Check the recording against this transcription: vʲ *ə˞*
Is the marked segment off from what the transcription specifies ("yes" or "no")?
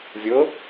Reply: yes